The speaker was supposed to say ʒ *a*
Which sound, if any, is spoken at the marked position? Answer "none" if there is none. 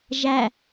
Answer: æ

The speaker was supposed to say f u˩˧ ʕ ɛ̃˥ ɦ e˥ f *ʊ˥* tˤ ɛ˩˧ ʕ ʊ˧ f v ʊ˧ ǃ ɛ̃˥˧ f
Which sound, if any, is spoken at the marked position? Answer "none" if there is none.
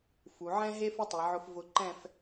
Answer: ʊ˥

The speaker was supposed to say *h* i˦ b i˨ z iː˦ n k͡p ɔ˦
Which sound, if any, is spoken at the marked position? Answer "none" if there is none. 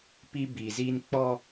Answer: p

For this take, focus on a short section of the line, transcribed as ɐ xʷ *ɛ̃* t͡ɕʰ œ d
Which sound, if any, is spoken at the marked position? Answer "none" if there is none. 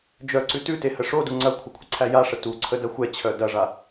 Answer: ɛ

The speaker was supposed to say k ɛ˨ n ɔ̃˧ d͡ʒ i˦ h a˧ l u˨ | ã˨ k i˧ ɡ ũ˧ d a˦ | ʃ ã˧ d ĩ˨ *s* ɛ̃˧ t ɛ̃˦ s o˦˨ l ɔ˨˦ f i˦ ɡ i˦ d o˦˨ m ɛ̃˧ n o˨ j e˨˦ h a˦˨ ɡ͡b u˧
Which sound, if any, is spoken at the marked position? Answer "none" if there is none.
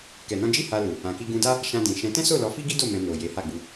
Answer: ʃ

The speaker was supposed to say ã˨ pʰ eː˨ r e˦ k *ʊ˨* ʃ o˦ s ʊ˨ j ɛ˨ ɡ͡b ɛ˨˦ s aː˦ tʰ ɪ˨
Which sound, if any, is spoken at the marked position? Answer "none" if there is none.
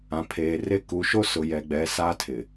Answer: u˨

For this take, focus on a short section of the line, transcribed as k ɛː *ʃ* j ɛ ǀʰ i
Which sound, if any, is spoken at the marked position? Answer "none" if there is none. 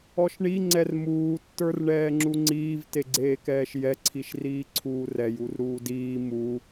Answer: ʃ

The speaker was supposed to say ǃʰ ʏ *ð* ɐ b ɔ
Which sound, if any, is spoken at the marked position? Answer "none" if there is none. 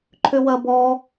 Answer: w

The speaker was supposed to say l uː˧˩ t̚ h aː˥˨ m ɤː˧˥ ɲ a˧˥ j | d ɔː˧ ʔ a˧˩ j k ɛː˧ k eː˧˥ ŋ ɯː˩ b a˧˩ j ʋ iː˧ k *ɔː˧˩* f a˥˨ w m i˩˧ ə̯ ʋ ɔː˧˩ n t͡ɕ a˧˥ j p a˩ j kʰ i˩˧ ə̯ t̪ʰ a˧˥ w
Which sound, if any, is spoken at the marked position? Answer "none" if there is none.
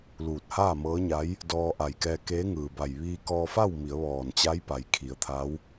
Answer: ɔː˧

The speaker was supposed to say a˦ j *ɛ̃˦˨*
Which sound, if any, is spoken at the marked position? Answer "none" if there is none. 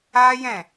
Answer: ɛ̃˦˨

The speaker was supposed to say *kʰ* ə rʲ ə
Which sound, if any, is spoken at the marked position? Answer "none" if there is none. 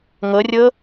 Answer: ŋ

